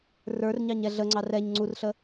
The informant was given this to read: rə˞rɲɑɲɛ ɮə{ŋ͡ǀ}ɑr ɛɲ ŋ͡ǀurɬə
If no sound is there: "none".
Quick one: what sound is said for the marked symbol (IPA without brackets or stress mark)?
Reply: ŋ͡ǀ